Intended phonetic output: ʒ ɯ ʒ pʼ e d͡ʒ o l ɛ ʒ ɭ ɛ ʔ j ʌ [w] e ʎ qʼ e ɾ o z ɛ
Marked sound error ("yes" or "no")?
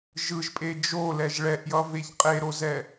yes